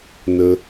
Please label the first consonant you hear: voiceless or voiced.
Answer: voiced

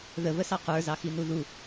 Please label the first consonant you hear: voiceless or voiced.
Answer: voiced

